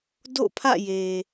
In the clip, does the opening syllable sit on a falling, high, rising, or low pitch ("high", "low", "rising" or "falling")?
falling